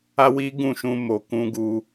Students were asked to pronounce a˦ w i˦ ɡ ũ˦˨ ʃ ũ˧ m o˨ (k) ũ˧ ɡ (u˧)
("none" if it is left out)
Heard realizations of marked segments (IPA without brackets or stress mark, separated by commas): k, u˧